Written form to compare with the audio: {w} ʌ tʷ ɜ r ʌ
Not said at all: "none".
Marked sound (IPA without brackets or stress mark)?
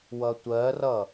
w